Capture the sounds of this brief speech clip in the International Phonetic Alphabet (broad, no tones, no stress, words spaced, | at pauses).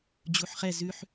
d͡ʑuħχɛ zʉħ